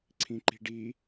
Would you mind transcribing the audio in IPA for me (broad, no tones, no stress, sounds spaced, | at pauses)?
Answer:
ǀʰ ĩ ǃ i̤ ɖ i